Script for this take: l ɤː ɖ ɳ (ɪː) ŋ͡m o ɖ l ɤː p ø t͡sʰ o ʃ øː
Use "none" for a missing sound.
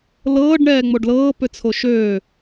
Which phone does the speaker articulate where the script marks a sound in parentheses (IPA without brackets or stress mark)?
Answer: ɛː